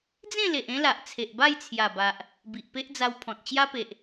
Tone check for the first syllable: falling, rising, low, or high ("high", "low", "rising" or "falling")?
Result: falling